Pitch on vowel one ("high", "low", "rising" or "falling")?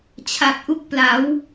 low